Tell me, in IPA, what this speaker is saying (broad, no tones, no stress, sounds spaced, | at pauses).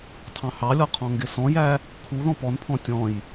tʰ ɑ̃ h ɑ lʲ ɔ qʰ ɔ̃ ŋ ɡ ɪ s ɔ̃ j æ | kʰ u ð ɔ̃ p ɔ n pʰ ɔ̃ tʲ ɔ̃ j